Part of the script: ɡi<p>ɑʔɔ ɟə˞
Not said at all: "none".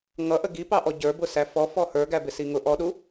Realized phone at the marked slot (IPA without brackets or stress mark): p